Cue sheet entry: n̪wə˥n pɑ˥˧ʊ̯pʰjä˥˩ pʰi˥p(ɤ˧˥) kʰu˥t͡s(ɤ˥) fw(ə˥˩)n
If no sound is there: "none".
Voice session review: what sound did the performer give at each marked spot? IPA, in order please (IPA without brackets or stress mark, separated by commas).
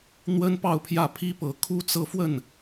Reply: ɤ˧˥, ɤ˥˧, ə˥˩